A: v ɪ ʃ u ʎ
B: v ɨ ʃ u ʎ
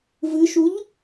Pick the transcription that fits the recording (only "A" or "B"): B